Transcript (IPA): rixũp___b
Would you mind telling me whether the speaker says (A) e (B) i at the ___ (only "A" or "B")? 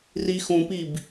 B